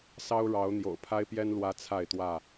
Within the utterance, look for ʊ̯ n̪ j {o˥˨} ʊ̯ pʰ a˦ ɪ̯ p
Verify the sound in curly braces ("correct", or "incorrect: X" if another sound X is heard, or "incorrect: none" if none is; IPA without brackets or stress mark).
incorrect: o̰˨˩